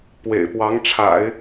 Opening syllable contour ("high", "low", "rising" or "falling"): low